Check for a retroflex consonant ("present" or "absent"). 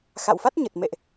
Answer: absent